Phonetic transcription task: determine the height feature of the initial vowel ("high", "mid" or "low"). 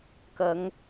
low